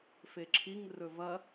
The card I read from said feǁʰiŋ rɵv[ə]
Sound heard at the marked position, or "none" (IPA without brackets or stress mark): ɐ